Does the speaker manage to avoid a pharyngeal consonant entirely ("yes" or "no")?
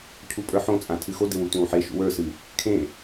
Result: no